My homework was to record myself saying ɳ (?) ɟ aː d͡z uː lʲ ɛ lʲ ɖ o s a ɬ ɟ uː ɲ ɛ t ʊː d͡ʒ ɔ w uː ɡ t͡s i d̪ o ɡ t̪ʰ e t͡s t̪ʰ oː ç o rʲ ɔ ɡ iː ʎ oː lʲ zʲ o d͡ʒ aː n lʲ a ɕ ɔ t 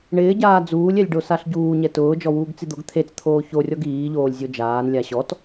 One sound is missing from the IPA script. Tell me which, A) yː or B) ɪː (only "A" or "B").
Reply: B